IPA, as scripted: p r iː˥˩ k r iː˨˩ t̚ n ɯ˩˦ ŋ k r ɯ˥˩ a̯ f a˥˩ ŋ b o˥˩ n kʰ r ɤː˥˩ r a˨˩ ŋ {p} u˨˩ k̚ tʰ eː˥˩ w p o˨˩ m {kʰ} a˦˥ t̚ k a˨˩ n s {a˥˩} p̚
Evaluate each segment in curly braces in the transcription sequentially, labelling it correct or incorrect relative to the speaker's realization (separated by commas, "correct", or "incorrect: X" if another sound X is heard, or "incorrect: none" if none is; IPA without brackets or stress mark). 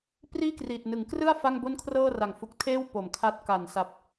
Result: incorrect: f, correct, incorrect: a˨˩